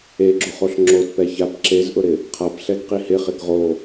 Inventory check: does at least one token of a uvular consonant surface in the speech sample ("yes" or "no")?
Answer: yes